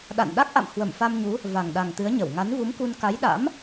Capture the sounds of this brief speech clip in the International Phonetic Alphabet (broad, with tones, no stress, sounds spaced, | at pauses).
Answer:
ɗ a̰˧˨ n ɗ a˦˥ k̚ ʔ a̰˧˨ m h w ə˧˩ m f a˧ m ɲ u˨˦ | v a˨˩ ŋ ɗ a˨˩ ŋ t̪ ɨ˨˦ ə̯ ɲ ə˧˩ w ŋ a˨˦ n v u˨˦ m k u˧ n k a˨˦ j ɗ a̰˧˥ m